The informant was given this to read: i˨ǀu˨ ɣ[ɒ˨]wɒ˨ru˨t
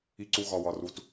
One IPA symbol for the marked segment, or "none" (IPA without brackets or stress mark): ɒ˨